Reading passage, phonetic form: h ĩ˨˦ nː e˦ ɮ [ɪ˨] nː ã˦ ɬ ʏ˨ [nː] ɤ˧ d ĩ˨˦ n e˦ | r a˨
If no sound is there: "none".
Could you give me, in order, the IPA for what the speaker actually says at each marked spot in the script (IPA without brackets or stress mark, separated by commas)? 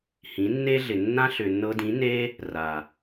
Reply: ɪ˨, nː